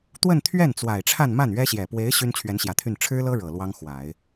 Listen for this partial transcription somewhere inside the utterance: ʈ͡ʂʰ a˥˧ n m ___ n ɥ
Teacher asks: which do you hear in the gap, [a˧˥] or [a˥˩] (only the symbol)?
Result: a˥˩